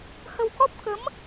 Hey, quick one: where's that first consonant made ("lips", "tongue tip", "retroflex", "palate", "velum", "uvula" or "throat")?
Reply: throat